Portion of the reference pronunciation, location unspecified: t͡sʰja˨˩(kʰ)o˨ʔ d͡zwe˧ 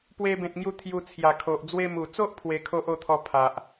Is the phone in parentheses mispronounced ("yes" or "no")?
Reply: no